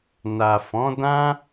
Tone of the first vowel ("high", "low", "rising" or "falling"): low